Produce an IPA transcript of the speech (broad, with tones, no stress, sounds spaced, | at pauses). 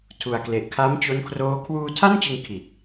tʰ u˨˩ a̯ k l e˨˩ ʔ kʰ a˦˥ m t͡ɕ o˦˥ n kʰ r oː˦˥ kʰ w uː˧ tʰ a˥˩ n t͡ɕ ɯ˧ ŋ kʰ i˨˩ t̚